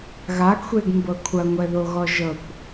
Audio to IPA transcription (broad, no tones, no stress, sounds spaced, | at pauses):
ɣ a ɡ xʷ e ɡ m b ɤ kʷʰ ɐ ŋʷ ɛ ð o ɣ ɔ ʒ ɤ kʷ